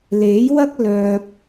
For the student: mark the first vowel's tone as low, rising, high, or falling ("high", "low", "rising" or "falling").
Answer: rising